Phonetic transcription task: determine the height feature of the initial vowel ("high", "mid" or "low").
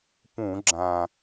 high